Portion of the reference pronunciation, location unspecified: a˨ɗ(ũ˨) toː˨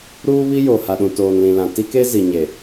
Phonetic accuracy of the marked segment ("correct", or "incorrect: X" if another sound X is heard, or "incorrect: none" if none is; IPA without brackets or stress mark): correct